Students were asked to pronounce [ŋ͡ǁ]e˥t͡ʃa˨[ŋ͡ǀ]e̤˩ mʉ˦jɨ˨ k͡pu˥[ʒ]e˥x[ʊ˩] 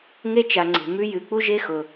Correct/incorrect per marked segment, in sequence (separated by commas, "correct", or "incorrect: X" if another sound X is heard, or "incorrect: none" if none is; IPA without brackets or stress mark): incorrect: ŋ, correct, correct, correct